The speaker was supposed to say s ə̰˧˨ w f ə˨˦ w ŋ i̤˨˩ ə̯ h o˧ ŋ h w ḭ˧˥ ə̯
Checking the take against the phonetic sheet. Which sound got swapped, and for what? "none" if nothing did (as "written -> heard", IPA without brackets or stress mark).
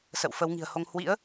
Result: none